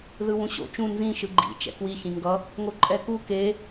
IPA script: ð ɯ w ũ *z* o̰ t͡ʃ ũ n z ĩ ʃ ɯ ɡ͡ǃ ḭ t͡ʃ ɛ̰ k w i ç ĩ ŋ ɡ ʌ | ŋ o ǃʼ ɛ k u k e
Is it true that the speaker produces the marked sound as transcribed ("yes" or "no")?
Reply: no